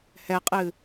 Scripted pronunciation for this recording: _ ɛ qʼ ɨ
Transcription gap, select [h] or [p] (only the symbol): h